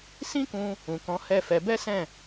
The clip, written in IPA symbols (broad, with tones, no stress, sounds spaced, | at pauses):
s ĩ˦ k ũ˧ | ũ˨ k ɔ̃˨˦ h ɛ˦˨ f ɛ˨˦ b ɛ˦ s ɛ̃˦˨